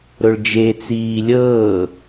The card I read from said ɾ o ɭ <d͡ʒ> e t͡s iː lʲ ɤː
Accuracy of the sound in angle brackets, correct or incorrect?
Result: correct